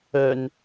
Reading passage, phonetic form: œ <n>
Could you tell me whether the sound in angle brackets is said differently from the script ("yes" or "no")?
no